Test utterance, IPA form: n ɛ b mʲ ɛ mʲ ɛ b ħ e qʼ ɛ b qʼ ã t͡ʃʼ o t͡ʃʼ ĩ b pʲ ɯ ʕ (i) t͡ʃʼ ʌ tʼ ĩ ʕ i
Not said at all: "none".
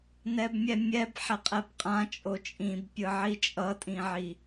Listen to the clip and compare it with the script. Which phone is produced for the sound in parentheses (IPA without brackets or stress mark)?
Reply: i